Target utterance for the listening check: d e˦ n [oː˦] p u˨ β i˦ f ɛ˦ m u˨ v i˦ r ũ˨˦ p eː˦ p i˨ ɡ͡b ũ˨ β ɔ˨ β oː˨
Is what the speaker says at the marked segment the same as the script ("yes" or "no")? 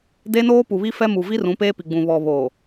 yes